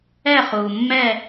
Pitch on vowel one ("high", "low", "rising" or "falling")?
falling